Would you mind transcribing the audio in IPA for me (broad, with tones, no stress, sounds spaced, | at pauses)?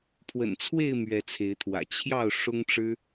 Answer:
pʰ w ə̰˨˩ n t͡sʰ w e˥˨ ɪ̯ m ɥ ɛ˨˦ t͡sʰ e˨˦ ɪ̯ t̪ʰ w ä̰˨˩ t͡ɕʰ j ɑ˥˨ ʊ̯ ʂ ʊ˦ ŋ ʈ͡ʂ ɻ̩˦